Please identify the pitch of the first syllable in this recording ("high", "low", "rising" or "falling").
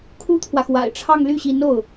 high